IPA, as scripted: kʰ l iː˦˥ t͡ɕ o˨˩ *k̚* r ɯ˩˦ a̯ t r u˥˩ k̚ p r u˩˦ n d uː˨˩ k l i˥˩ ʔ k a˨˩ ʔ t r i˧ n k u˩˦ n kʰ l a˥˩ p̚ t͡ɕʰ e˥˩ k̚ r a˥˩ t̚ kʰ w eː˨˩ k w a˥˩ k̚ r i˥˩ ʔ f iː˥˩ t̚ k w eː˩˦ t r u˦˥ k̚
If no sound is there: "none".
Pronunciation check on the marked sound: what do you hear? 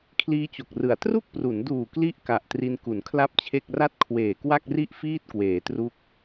k̚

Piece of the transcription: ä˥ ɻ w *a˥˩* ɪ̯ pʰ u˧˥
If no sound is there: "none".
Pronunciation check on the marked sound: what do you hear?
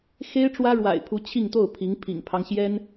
a̰˨˩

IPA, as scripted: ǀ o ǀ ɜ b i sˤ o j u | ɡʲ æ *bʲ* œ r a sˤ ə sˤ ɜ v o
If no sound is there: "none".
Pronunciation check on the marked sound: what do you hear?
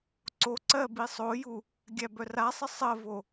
b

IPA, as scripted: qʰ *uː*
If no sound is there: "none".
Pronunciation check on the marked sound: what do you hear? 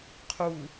u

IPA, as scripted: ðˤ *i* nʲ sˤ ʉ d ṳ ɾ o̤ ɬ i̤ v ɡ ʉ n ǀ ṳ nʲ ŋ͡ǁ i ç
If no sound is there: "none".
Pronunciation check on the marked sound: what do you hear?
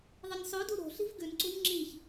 ɨ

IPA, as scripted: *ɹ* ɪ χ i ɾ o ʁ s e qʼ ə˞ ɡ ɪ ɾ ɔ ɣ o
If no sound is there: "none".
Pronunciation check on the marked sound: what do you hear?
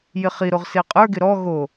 j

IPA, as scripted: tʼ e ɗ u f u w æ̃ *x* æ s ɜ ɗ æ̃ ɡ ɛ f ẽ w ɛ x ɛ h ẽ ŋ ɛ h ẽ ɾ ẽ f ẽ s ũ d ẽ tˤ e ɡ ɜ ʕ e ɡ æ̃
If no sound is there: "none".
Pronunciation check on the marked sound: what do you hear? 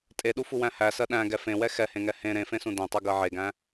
h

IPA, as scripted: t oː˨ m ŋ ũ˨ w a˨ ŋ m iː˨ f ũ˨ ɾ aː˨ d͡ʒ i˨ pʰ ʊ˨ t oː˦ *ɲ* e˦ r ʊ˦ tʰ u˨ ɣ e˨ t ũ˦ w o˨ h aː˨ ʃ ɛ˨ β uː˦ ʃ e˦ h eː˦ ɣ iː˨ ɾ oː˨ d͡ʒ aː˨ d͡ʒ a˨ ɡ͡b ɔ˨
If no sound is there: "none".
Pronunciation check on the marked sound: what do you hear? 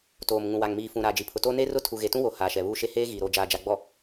n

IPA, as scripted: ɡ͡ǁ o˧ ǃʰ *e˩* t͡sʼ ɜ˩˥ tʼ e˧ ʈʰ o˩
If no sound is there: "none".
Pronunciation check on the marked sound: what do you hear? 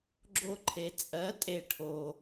e˩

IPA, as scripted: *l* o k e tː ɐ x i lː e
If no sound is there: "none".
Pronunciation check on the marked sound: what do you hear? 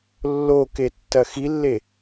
lː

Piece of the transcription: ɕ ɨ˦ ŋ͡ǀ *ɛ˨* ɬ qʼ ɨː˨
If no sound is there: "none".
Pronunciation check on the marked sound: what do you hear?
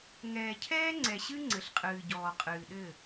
ɘ˨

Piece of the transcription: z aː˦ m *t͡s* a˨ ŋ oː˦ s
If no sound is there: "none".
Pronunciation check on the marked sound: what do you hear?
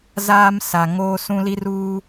s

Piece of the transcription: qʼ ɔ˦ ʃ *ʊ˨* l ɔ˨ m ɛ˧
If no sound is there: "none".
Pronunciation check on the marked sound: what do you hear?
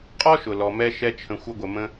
ʊ˨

